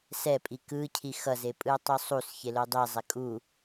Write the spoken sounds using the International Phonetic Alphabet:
s ɛ pʼ i k ɯ cʰ i x ʌ z e pʼ ɯ ɐ̯ tˤ u sˤ u s ç e l o dˤ i zˤ ɛ kʼ u

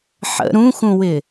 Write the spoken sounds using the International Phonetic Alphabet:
ħ ə̰ ɾ ũ x ũ w ɪ

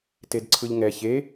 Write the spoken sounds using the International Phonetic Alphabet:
t e d ǀʰ ɯ ʎ ŋ ɛ ç e

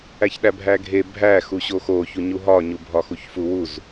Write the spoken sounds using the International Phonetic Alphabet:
æ ç ɗ æ bʱ æ ɡʱ e bʱ æ x u ɕ o x o ç u ɲ u ɦ ɒ ɲ u bʱ ɒ x u ç f u w u z

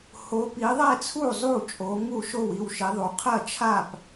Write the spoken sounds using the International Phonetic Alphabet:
h o˨˦ p i˨˦ ðˤ ɛ˥˩ t͡sʰ u˥˩ zˤ u˥˩ t͡ʃʼ o˨˦ ŋ u˥˩ ʃ o˥˩ w i˥˩ w ʃ i˨˦ ðˤ u˨˦ qʰ ɐ˥˩ t͡ʃʰ a˥˩ p

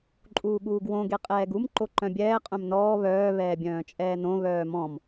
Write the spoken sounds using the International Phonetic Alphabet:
ǃʼ uː ɠ uː ɡ w õ ɡ e qʼ ɛː ɡ u m ǃ o ǃ œ̃ bʲ ɛː qʼ œ̃ m n ɔː β œː β ɛː bʲ œ̃ː t͡ʃʼ ɛː n õ β œː m ɔ̃ m

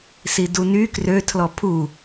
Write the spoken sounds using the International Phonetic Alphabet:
s i d u n y k r ø tʰ l ɔ pʰ u

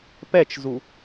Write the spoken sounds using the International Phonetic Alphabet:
p ɛ t͡ʃ z u

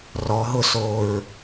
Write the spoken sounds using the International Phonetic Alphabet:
r ɔ ɦ ʊ s o ɹ

